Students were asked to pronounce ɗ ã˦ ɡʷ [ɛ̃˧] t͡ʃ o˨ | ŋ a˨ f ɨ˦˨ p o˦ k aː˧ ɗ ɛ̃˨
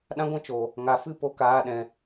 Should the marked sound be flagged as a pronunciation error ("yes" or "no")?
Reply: yes